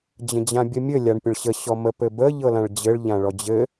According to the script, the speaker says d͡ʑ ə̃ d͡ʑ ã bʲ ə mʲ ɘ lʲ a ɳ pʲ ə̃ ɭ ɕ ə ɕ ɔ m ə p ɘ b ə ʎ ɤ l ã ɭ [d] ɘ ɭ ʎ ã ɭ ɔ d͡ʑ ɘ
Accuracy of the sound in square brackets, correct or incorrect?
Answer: incorrect